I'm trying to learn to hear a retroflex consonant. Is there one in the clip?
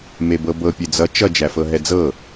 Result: no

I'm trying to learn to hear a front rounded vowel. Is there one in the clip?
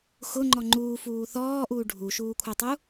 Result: yes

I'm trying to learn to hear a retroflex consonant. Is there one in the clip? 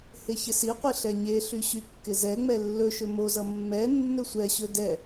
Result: no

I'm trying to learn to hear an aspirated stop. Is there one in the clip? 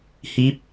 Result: no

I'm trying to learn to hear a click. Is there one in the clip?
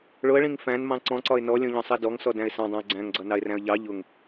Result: yes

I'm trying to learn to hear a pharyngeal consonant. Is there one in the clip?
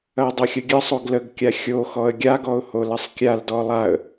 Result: no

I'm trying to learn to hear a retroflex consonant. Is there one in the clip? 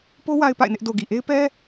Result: no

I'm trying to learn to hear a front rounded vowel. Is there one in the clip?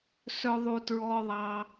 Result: yes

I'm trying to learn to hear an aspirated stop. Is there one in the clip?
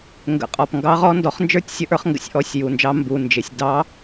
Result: no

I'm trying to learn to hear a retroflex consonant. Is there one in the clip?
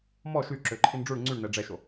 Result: yes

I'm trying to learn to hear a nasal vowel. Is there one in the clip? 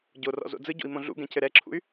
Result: yes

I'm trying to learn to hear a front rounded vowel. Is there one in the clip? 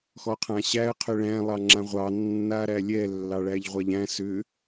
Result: yes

